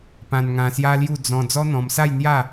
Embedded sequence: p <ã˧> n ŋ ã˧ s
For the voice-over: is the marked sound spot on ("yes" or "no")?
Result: yes